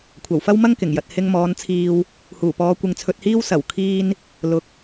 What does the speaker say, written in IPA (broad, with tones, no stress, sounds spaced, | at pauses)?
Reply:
kʷʰ ɐ˨˩ w f ɐ˥ w m ɐ˥ ŋ k ɪ˨˩ ŋ j ɐ˨ t̚ h ɪ˧ ŋ m ɔː˨˧ n t͡sʰ iː˧ w | h uː˨˩ p ɔː˨˧ kʷ ɪ˨ ŋ t͡sʰ ɵ˧ t̚ h iː˥ w s ɐ˨˩ w kʰ iː˧ n | l ʊ˨˥ k̚